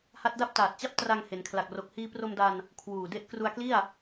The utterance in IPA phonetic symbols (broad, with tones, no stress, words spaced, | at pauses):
ha˦˥t̚da˥˩p̚taː˨˩t̚t͡ɕa˥˩p̚ tra˧ŋ he˩˦nkʰla˨˩k̚ro˨˩k̚ hiː˧pro˧mda˧n | kʰwuː˨˩de˦˥ʔ kru˧a̯kli˥˩a̯